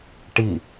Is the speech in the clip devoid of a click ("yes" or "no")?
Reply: yes